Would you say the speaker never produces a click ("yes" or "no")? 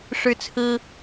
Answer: yes